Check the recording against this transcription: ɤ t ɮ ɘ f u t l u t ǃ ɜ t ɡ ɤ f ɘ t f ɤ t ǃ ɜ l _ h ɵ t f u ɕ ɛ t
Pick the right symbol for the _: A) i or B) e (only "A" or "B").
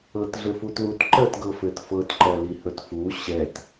A